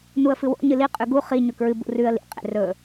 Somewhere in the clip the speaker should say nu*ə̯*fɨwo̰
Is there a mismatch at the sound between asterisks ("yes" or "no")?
no